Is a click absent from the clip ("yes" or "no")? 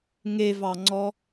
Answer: no